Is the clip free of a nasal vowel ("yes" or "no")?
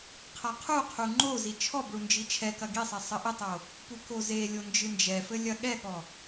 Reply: yes